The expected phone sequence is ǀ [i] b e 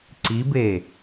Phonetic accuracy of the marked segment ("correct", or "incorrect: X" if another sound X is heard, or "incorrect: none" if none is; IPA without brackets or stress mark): correct